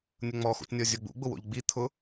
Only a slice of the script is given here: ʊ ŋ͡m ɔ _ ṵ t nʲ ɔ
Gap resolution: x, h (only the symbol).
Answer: x